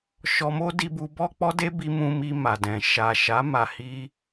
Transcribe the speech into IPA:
ʃ ɔ˧ m o˦ d i˧ b u˧ b ɔ˦ k͡p ɔ˦ d e˦ b i˧ m ũ˧ m i˧ m a˨ d ɛ̃˨ ʃ a˨ ʃ a˨˦ m a˧ h i˦

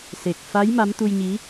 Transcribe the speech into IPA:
s e˨˩ k̚ f a˨˦ j m a˨˦ m t̪ u˧ j ɲ i˨˦

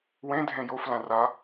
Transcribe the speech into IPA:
w ẽ dʱ ẽ j o f l ã r a

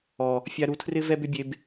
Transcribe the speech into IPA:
ɔ˨ | fʲ a˧ ɾ u˧ tʰ r ɪ˦ v ɛ˦ b ʏ˦ bʲ e˧ b

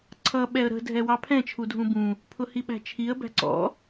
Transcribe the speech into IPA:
ǀʰ ʌ ɓ ɛ ə̯ ɾ ə̤ dʱ ɛ w ɑ pʰ ɛ̃ t͡ʃʰ u dʱ ũ b ũ | pʰ ʊ h i ɓ æ̤ t͡ʃʰ i ə̯ b æ̤ ǀ ɔ̰

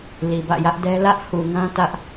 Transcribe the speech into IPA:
l i˨ b ä̰˦˨ j ä˦ ʔ d ɛ˦ l ä˦ ʔ h u˨ ŋ ã˦ t ä˦ ʔ

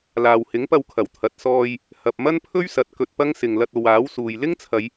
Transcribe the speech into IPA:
l aː˨ w h ɪ˨˥ ŋ p ɐ˧ w kʰ ɐ˨˩ w t̪ʰ ɐ˨ t̚ s ɔː˧ j | h ɐ˨ p̚ m ɐ˥ n pʰ ɵ˥ ɥ s ɐ˨˥ t̚ k ɵ˧ t̚ p ɐ˥ ŋ s ɪ˨ ŋ l ɐ˧ t̚ o˨ w aː˨˥ w s uː˨ j l ɪ˥ ŋ t͡sʰ ɐ˨˧ j

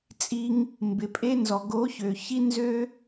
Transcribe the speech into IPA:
t͡sʼ i˧ ŋ | m b ɪ˨ pʼ e˧ n z ɔ˨ ɡ o˨˦ ç ø˨ ç i˦ n z ø˦

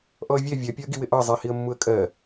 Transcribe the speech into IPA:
ʔ ɔ ə̯ vʲ ɛ vʲ ɜ pʲ ɒ ə̯ ɡ i w ɪ ʔ ɑ zˤ i h i ə̯ mː u ə̯ kʼ ɜ

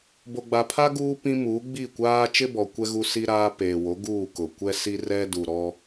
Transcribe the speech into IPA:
b o˨ ɡ͡b a˨ pʰ a˦ ɡ uː˦ p ĩ˦ m u˨˦ ɡ͡b i˦˨ kʷ aː˦ t͡ʃ ɪ˦ b ɔ˨ kʷ ɛ˦ ɣ u˦ s i˦ ɾ aː˦ p eː˨ w o˨˦ ɡ uː˦˨ k ʊ˨ kʷ ɛ˦ s i˦ r ɛ˦ d u˨ ɾ ɔ˦

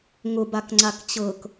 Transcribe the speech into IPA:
ŋ ʊ b a k ŋ͡ǀ a k t͡ɕ ɤ k

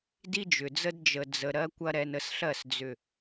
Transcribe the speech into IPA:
d i˦ d͡ʒ ʏ˨ d͡z ə˦ d d͡ʒ ə˨ d͡z ə˨ ɾ ɜ˧ kʷ ɐ˦ ɾ ɛ˧ n ə˧ s ɬ ɜ˦˨ s d͡z ʏ˨

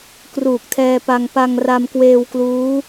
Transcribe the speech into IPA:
k r uː˨˩ k̚ tʰ ɛː˧ p a˧ ŋ p a˧ ŋ r a˧ m k w eː˧ w k l uː˦˥

